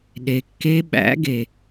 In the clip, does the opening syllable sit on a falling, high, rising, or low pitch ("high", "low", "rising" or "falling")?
low